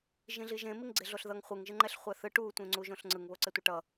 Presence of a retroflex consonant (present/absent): present